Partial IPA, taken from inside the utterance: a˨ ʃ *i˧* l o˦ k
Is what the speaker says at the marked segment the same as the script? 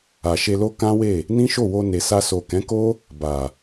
no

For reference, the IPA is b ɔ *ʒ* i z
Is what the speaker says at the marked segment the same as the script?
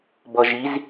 yes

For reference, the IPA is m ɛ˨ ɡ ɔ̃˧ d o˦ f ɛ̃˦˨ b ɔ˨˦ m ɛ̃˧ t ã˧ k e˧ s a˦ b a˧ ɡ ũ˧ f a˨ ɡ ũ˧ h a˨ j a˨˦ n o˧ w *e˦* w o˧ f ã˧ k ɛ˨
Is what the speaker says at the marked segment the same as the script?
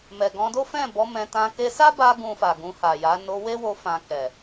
yes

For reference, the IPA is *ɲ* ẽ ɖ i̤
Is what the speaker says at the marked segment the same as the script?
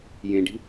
no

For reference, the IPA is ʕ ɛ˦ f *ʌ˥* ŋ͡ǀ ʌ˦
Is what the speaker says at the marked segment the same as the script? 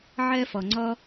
no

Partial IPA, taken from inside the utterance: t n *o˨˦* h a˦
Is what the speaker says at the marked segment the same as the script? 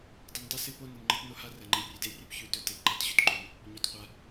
no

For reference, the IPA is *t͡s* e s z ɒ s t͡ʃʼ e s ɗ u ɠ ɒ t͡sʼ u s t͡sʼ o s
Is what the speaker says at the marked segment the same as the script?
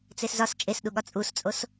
yes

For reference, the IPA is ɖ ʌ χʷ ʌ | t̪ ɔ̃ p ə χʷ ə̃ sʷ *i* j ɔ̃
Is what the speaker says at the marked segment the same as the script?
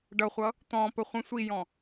yes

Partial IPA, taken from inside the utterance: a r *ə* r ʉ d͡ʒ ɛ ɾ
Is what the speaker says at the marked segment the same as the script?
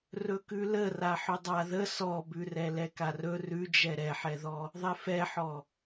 no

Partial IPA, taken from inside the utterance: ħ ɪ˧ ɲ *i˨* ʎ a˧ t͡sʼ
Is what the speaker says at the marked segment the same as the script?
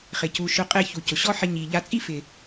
yes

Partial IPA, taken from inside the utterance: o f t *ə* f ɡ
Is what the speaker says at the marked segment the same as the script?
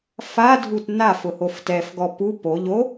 no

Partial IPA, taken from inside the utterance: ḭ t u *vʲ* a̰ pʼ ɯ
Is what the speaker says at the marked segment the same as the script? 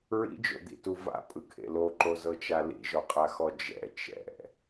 no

